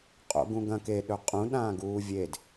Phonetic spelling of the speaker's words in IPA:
qʼ o̰ ɡ ũ ɡ ɐ̃ k e ɗ ɵ qʼ ũ ɗ ãː ɡ uː vʲ e d

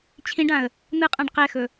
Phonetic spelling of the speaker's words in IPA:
t͡ɕʰ ĩ ɖ ã ə̯ | n̪ ɯ qʼ ã ɖ q ɛ x ɵ

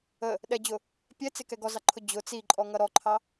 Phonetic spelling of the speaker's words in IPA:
ə | ɗ ɛ d͡ʑ ʊ | pʲ ɛ t͡s ɪ k ɛ ɡ ɔ z ɑ ǃʰ ʊ d͡ʑ ʊ t͡s i ǃʼ ɔ ŋ ʌ ɾ ɔ ǃʰ ɑ

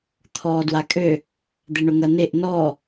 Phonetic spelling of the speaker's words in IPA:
t̪ʰ ɔː d w a kʼ ø | d̪ e ɳ ʊ ŋ ɐ n e ʔ n ɔ

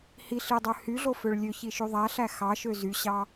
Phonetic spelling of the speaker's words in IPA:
h i ɬ i dˤ ø h y ɮ o f ø ɭ lʲ ø ç i ʃ y ðˤ æ ɬ æ x ɑ ʃ ø z y ɕ ɑ

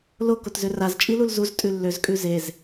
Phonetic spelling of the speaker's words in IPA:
l o k o t z ø r a z t͡ʃʼ i l u l z u z tʼ ʉ lː ø z kʼ ʉ z e z

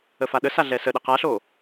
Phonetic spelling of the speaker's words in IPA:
ə f a ɗ ə s a ɮ ɛ s ə ɗ ɛ q a ɬ o

